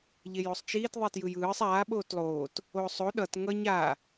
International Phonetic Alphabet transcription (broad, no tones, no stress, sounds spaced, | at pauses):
ʎ e j o sˤ t͡ʃ iː t ðˤ i t j ɯ j ɯː sˤ aː ɓ oː t lˠ oː t | oː sˤ o ɗ ʌ t ŋ ʌ ɲ a